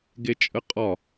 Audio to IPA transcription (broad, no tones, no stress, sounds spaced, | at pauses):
ɡ e t͡ʃʼ ə qʼ ɒ